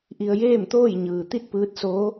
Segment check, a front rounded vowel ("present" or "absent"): absent